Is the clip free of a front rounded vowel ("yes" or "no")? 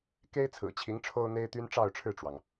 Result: no